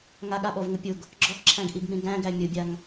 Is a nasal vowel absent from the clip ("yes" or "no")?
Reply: no